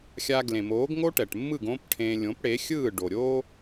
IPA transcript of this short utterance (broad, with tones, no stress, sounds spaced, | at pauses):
xʲ a˧ ɡ l ẽ˩ m oː˩˥ ɡ ŋ o˥ ʈ ɛ˩ ʈ mː ɯ˥˩ ɡ õ˥ p ʈʰ ẽ˧ lʲ õ˩˥ p ɽ e˩˥ xʲ ɯː˥˩ ɖ o˩ ɾʲ oː˥